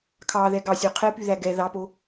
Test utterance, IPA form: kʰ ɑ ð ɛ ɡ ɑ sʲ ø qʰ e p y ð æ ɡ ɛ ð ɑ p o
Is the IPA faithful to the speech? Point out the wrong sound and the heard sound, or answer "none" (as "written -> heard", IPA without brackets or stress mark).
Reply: none